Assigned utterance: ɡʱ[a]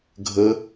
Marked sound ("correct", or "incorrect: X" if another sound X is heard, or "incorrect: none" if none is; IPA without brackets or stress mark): incorrect: ə